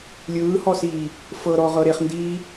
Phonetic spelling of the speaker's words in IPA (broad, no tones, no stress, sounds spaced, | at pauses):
lʲ ɯː h ɔ s iː | f ɤ ɾ ɔ ʁ ɤ ɾ e χ n d iː